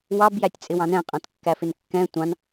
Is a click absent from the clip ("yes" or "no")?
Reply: yes